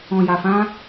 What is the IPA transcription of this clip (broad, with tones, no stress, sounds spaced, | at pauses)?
ɔ̃˨ j a˨ f ã˧